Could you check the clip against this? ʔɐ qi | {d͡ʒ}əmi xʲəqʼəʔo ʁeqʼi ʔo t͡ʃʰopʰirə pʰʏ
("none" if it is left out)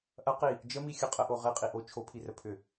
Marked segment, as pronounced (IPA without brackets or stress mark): d͡ʒ